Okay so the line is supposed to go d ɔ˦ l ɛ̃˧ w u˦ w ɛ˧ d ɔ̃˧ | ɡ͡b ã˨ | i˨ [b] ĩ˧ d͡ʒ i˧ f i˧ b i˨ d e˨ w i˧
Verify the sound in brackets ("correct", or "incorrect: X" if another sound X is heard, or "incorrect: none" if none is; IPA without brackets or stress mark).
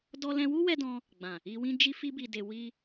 incorrect: w